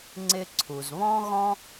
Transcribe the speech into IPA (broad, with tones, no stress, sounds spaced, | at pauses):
ŋ͡ǀ ɪ˧ ǀʰ u˩ z β ɔ̃˥ ɣ ɔ̃˥